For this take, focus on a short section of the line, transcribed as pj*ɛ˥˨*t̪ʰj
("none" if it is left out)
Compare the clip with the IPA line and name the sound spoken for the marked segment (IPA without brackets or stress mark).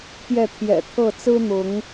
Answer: ɛ˥˨